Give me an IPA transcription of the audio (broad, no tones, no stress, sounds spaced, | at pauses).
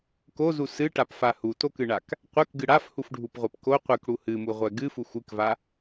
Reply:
k o z u s ɨ ʈ a p f a h u t o k ɨ ɳ a k | qʷ ɛ k ɡ ɨ ɽ a f h u f ɖʱ u p ʁʷ ɛ p k o qʷ ɨ k ɽ u h ɨ m u ʁʷ ɛ ɡ ɨ f u xʷ ɨ k v a